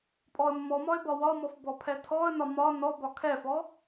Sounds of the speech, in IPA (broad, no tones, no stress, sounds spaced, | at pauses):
pʼ ɔ ə̯ mː ɔ m ɒ ɪ̯ b ɒ w ɒ m ɔ f b ɔ pʰ ɛ tʰ ɔ ə̯ n ɒ m ɒ n ɔ b ɒ kʰ ɛ f ɔ